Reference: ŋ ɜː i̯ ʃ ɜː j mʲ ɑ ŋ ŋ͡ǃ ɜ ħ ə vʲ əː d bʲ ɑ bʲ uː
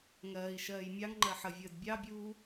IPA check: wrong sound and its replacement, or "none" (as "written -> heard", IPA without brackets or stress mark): none